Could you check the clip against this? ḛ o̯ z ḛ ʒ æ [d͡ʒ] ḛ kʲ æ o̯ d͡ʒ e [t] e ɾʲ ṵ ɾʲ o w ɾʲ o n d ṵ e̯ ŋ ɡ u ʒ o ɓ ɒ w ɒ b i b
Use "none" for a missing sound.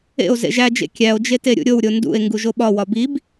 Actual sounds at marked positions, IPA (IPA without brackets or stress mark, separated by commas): d͡ʒ, t